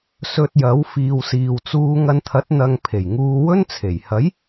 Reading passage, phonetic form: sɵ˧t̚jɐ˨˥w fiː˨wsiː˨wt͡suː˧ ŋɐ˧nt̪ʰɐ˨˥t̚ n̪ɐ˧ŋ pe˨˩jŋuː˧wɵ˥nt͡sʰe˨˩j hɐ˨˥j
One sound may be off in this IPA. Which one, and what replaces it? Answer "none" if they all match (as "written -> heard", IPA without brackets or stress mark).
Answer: p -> pʰ